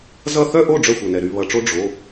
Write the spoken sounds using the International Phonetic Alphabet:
z ʌ˥˩ θ œ˥˧ ʔ o˥˩ ɖ͡ʐ œ˥˩ xʷ œ˩ n ɛ˩ ɾ y˧˩ β ʌ˩˧˩ ʈ͡ʂ o˥ ɖ͡ʐ o˩˧˩

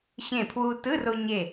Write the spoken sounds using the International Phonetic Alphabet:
ɕ ẽ˧˩ pʰ w u˧ t ɯ˧˥˧ r o˧ ɲ e˧˩

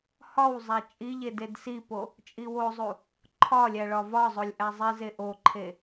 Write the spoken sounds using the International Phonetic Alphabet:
h ɒ w zˤ æ t͡ʃʼ i ʎ e d e d s i p o | t͡ʃʼ i w o zˤ u | ǃʰ ɒ lʲ æ ɭ ɒ v ɒ zˤ o lʲ ʔ æ zˤ i z e ʔ o ǃʰ e

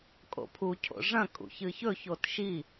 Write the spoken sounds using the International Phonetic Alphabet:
kʼ o̰ pʰ u cʰ o̰ ʐ ɐ̃ kʼ ṵ ç ɨ ç ɵ ç o t ʃ i

